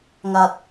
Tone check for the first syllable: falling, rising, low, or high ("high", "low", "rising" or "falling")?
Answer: low